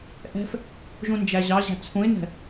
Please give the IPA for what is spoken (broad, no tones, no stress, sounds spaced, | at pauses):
ʔ ɛ̤ f | ʒ ũ n d͡ʒ æ ʑ ɑ ʑ æ̤ t͡sʰ ũ ɪ̯ n ɛ̤